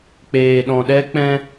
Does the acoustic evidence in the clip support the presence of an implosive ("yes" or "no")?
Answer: yes